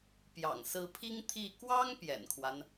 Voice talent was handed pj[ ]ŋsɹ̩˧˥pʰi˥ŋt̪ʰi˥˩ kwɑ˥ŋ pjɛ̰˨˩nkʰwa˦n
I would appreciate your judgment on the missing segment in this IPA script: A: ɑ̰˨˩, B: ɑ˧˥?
A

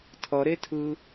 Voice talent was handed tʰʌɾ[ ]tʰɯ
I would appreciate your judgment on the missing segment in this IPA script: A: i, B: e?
B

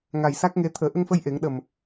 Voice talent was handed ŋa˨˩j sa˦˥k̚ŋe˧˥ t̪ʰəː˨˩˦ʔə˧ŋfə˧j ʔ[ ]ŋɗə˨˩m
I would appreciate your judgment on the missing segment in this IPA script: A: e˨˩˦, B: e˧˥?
A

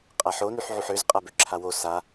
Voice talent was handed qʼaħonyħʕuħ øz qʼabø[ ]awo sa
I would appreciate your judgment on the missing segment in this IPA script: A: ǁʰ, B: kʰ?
A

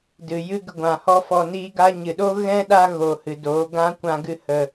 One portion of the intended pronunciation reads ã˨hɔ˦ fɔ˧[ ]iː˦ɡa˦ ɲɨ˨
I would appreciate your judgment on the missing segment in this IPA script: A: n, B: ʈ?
A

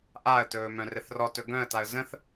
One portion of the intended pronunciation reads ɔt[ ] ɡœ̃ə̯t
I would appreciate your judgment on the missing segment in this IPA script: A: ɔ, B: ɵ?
B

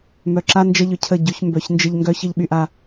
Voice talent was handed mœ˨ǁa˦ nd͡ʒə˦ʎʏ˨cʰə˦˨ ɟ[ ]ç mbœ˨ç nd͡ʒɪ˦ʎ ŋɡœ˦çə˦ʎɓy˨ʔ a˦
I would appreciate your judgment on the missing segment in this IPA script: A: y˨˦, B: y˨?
A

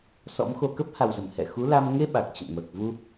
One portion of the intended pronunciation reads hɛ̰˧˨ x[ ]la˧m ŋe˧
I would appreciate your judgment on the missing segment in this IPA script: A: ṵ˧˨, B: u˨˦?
B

